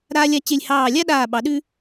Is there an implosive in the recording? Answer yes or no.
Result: yes